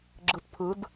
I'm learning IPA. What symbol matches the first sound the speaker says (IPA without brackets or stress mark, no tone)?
ɡ͡ǁ